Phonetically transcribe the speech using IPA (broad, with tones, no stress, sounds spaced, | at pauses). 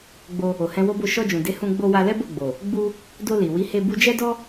ɡ͡b o˧ | o˨ h ɛ̃˧ w o˦ b o˦˨ ʃ ɔ˧ d͡ʒ ũ˨ d e˨˦ h ũ˧ ɡ͡b o˧ w a˧ l ɛ˦ b o˦˨ ɡ͡b o˨ | ɡ͡b u˧ | d o˧ l i˨ w i˨˦ h e˧ b u˧ d͡ʒ ɛ˦ d ɔ˦